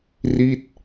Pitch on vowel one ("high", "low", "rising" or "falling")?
falling